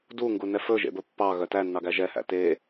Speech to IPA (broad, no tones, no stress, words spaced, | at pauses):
duŋɡunɛ fɵʒḛbɵ pːɑɣœ tænːɑɡæ ʒɛhæ̰ te